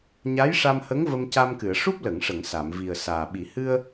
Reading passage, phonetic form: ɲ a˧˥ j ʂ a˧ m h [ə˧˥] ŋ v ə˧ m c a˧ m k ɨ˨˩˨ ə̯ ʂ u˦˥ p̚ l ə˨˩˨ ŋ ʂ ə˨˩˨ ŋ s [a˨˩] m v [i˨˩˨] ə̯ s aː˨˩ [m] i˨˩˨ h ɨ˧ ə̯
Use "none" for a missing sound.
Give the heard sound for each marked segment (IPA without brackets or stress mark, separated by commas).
ə˧˥, a˨˩˨, i˨˩, ɓ